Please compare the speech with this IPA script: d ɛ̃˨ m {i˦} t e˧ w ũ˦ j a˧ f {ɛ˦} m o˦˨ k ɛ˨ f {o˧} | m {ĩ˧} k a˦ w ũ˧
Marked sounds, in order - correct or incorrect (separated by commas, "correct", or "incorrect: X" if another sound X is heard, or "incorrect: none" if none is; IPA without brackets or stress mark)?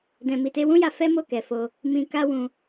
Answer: incorrect: i˨, correct, correct, correct